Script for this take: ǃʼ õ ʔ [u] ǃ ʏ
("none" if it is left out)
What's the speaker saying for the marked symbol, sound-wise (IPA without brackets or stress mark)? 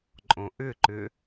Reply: ʏ